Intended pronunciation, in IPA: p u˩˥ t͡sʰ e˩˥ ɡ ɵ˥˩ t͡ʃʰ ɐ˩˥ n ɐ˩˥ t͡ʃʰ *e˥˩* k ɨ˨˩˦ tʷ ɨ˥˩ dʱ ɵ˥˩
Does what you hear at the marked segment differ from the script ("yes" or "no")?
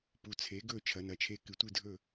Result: no